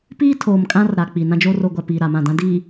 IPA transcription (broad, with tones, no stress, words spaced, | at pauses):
piː˦tʰoː˨m kʼã˦rɾa˨ k͡pi˨nã˦d͡ʒo˦ ro˨ɡʷa˨ piː˨ ɾa˨mã˦˨dã˦ diː˨